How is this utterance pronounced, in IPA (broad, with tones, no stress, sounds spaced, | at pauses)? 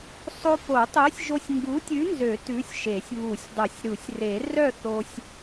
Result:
sˤ o˧ p o˨˩˦ tˤ ø˨˥ sʲ ʒ o˧ sʲ ŋ ɡ u˨˥ tʲ ʉ˨˥ n z ø˨˩˦ t ʉ˨˥ sʲ ʃ e˨˩˦ sʲ β u˨˩˦ sʲ dˤ ɵ˨˩˦ sʲ ɾ u˨˩˦ sʲ r e˨˩˦ r œ˥˨ θ o˧ sʲ